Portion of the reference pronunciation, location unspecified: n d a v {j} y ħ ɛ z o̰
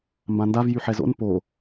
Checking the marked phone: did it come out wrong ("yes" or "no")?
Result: no